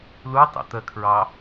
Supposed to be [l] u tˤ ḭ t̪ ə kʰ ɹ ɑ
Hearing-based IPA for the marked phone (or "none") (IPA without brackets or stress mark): l